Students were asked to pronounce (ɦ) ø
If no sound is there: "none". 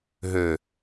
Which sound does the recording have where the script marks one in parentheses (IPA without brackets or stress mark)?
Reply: ɦ